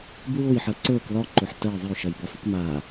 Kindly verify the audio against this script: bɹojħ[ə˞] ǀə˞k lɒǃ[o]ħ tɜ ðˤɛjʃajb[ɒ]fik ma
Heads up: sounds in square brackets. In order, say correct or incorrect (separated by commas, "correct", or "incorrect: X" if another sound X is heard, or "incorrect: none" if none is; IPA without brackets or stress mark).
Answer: incorrect: ɜ, correct, correct